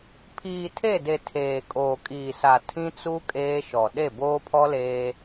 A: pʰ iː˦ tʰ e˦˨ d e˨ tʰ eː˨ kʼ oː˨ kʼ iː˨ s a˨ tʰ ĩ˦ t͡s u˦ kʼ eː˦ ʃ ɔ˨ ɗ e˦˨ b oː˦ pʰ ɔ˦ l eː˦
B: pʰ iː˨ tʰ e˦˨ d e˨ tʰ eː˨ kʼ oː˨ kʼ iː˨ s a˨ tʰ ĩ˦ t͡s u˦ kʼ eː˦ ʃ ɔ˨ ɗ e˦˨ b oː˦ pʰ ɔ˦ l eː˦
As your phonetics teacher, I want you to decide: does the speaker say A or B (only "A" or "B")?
B